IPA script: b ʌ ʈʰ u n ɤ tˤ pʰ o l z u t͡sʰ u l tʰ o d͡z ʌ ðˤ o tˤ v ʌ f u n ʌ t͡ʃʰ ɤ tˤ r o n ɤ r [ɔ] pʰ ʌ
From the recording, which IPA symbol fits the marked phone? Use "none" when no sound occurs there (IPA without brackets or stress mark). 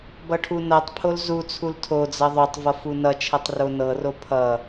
o